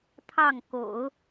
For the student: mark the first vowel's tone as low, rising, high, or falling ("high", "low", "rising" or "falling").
falling